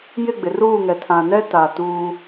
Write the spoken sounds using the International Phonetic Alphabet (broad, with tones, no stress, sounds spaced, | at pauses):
j ɪ˦˨ ɡ͡b ɪ˨ r uː˦˨ ŋ ɛ˨ tʰ ã˨ n ɛ˦ t a˨ t uː˦